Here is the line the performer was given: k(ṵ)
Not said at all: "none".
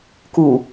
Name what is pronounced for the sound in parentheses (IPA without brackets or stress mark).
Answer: u